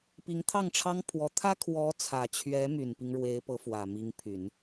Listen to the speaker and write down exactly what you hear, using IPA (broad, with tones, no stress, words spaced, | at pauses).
pi˧˥ŋ t̪ʰɑ˥˩ŋʈ͡ʂʰɑ˥ŋpʰwɔ˧˥ t̪ʰä˥kʰwɔ˧˥t͡sʰä˨˩t͡ɕʰɥɛ˧˥ my˨˩npi˦ŋɻwe˧˥ɪ̯pɤ˧˥ fwä˨˩mi˧˥ŋpʰy˨˩˦n